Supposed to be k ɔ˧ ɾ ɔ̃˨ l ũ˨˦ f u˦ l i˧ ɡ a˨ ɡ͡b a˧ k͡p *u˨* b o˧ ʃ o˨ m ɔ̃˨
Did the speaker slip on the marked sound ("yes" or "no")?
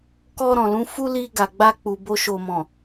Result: no